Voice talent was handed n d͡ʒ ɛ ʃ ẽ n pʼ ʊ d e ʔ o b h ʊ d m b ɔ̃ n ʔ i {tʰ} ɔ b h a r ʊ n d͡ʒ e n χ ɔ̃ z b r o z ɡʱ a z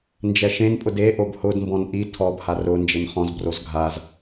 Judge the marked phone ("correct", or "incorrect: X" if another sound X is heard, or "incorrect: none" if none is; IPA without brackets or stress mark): correct